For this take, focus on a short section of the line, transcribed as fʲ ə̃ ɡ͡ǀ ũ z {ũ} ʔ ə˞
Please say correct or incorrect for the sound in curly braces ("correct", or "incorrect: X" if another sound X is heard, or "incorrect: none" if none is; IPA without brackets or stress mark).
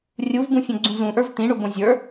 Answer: correct